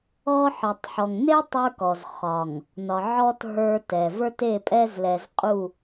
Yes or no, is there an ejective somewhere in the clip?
yes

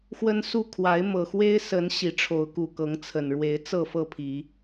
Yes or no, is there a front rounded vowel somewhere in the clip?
no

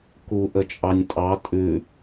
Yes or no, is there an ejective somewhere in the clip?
yes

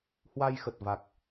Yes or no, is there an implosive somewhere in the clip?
no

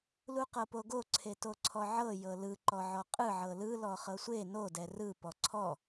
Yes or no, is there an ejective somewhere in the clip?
yes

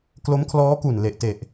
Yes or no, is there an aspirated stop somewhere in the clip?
yes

